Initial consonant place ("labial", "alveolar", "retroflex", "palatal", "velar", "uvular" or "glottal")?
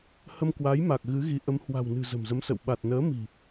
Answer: glottal